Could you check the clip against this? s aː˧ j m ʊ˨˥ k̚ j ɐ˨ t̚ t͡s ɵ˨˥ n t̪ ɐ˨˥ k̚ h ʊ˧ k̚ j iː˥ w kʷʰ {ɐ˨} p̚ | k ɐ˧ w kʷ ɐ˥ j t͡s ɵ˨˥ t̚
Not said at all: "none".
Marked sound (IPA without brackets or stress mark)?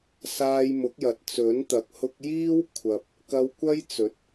ɐ˨